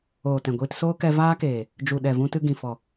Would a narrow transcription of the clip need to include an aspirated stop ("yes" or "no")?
no